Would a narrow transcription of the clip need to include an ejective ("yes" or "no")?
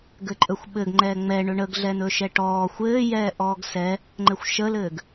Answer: yes